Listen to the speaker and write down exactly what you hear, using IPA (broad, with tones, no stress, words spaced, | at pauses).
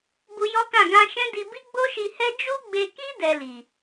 bu˧jɔ˦kã˦˨ ɡã˧ʃɛ̃˦di˧ bi˦ɡ͡bo˦ʃi˧hɛ˦ d͡ʒu˦ɡ͡be˧ki˦ dɛ˧li˨